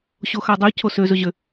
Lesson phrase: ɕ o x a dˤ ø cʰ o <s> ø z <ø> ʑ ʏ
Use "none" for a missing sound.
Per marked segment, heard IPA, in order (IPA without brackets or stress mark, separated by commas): s, ɵ